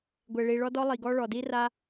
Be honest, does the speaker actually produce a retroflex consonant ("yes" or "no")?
yes